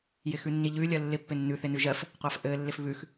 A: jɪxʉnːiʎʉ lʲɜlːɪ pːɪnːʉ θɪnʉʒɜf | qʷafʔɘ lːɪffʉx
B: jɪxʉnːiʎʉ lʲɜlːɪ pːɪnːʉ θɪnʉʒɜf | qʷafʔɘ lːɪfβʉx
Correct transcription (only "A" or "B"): B